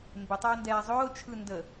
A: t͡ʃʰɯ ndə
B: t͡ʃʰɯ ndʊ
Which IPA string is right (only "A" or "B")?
A